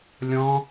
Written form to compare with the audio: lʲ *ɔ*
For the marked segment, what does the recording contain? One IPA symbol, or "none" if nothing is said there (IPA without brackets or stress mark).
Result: ɔ̃